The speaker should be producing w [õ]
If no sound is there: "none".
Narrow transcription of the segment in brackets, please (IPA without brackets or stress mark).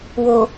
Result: o